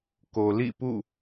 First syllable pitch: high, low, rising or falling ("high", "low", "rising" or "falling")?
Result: low